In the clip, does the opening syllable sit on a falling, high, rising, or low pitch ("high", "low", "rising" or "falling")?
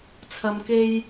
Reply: low